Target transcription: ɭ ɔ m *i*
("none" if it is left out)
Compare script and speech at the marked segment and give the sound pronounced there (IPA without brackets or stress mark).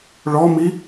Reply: i